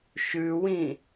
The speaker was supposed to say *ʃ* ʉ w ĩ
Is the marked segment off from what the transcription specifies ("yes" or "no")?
no